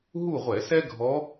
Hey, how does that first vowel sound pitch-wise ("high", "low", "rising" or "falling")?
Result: falling